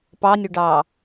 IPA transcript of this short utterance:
p ɑ nʲ ʊ ɖ ɑː

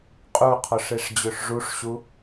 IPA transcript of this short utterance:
qʼ u qʰ ɔ ʂ e ʂ d͡ʑ ø ʂ ʐ u ʂ ɕ u

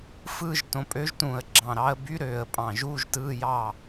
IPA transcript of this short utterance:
f ɯː˥˨ ʒ t õ˩˥ pʼ ø˧˥ ʒ t ũː˧˩ ə̯ ɡ͡ǁ ɑ̃˧˩ ɾ ɑ˧˥ ə̯ b y˧˥ ɾ øː˧˩ ə̯ pʼ ɑ̃˧˩ ʒ uː˧˥˧ ʒ t ɯː˧˥˧ j ɑː˥˨

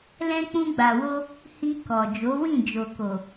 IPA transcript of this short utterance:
l ɛ̃˧ k͡p ũ˧ ɡ͡b a˨ w o˧ | h i˧ k ɔ˨ d͡ʒ o˨˦ w ĩ˦˨ d͡ʒ o˨ k o˨

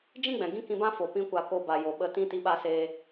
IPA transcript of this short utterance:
d͡ʒ ĩ˦ ɡ͡b ɛ̃˨ ɡ ĩ˦ k ĩ˧ b ã˦ f o˨ p ĩ˦ kʷ a˧ k o˧ b a˨ j o˨ ɓ ə˨ t ĩ˦ t i˦ ɓ a˦ s eː˧

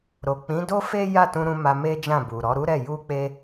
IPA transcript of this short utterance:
ɾ o˨ k͡p ĩ˨˦ d o˦ f e˦ j a˦˨ t ũ˧ ɾ ũ˧ m a˧ m e˦ d͡ʒ ã˦˨ b u˨ ɾ ɔ˨˦ ɾ u˦ ɾ ɛ˦˨ j u˧ k͡p e˧

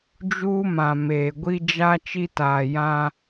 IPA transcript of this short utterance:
d͡ʒ uː˦ m ã˨ m eː˨ ɡʷ i˦ d͡ʒ a˦ t͡ʃ i˦ t aː˨ j ã˦

